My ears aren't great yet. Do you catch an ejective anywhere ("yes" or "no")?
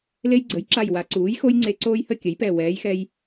no